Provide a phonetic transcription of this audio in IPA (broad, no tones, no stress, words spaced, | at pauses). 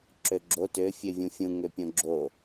ǁøɡ͡ǁo tø fʲøvʲũfʲũ ŋøpʲõɡ͡ǁo